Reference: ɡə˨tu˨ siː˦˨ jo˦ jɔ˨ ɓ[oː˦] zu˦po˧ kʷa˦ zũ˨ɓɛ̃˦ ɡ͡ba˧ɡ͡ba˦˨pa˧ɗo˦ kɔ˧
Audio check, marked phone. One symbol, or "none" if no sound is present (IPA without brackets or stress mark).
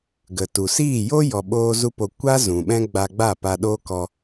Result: oː˦